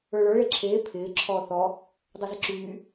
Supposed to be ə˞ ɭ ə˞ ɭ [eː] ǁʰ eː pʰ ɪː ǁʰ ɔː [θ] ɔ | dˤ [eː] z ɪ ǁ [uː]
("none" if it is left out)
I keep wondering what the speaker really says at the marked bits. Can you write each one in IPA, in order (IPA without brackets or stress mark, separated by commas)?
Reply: e, θ, e, yː